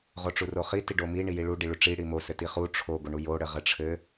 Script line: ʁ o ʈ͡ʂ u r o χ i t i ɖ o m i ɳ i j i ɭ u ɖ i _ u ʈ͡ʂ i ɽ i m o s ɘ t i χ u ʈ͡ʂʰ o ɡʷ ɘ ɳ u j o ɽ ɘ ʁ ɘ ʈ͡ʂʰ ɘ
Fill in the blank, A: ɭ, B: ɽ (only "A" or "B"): A